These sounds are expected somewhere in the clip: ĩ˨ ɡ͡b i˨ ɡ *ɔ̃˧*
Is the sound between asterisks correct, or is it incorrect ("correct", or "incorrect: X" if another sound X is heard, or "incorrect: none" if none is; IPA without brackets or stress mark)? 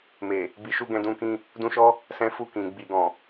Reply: incorrect: ɔ̃˨